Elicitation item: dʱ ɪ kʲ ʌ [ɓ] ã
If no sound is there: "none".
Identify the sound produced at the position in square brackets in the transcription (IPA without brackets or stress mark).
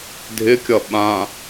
ɓ